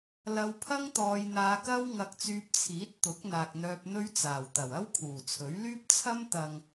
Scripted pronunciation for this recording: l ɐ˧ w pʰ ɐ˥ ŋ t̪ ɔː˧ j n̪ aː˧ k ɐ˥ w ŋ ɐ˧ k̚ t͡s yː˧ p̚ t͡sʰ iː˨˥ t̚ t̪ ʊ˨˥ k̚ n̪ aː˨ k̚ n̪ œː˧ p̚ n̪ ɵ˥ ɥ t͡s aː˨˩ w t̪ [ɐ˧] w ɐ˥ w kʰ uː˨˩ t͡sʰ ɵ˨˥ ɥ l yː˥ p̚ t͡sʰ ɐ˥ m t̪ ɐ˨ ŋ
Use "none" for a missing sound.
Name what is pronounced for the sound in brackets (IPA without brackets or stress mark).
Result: ɐ˨˩